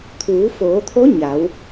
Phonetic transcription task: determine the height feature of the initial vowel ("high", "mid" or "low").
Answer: high